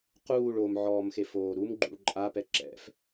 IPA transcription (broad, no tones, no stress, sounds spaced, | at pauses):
q uː ɭ o m ʕ ɔː m x e f oː ɾ u m ɡ͡ǃ ṵ ɭ ǃʼ a p ɛ ǁ ɛ̰ f